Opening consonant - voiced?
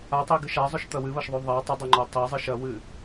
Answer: no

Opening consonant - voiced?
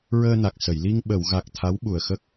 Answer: yes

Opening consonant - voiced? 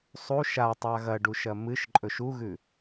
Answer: no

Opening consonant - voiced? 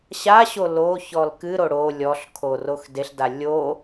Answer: no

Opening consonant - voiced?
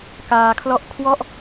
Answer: no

